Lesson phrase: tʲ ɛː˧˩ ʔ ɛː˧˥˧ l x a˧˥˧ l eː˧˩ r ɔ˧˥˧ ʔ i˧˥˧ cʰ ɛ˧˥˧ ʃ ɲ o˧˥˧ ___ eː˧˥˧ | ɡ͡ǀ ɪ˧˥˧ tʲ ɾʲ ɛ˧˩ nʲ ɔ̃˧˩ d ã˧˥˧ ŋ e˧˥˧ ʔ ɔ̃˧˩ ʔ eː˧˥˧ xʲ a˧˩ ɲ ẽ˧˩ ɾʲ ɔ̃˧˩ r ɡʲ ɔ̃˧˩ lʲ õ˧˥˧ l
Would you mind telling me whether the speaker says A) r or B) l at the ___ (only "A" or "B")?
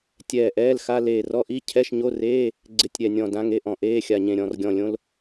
A